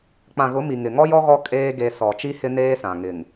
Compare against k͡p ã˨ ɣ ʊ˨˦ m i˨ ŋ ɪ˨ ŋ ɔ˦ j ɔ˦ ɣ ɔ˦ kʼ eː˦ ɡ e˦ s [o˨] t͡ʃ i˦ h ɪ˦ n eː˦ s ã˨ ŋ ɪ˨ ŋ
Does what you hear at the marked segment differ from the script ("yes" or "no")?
yes